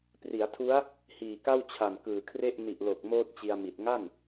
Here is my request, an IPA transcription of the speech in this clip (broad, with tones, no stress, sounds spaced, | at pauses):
p r i˩˦ a̯ tʰ u˦˥ a̯ | h iː˨˩ k a˥˩ w t͡ɕʰ a˨˩ n k ɯː˨˩ kʰ r e˥˩ ʔ n i˨˩ ʔ l o˨˩ k̚ m oː˥˩ t̚ t͡ɕ i˧ a̯ m i˨˩ t̚ ŋ a˥˩ n